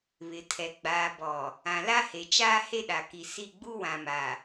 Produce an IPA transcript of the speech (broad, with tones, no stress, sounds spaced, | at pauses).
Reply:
β ɪ˨ tʰ ɛ˨ ɡ͡b aː˨ b ɔ˨ | ã˨ l a˦ h e˨ t͡ʃ aː˦ h e˦ ɗ a˨ k i˨ s i˦˨ ɡ͡b u˦ w ã˨ m a˨